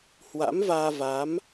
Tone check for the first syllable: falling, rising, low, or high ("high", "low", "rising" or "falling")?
rising